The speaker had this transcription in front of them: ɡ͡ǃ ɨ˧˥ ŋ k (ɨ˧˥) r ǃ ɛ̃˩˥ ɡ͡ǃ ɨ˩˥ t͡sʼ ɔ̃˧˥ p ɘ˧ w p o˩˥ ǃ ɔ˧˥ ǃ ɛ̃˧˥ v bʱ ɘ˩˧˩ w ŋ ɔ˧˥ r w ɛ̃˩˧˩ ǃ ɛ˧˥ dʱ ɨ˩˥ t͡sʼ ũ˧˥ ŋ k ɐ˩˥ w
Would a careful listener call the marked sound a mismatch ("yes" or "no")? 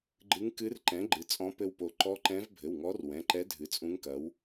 no